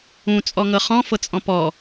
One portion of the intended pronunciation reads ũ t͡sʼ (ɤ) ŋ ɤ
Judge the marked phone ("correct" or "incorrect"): incorrect